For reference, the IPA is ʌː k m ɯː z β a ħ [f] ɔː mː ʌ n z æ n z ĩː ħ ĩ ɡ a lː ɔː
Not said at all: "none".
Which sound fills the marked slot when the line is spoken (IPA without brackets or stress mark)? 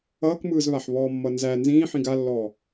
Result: β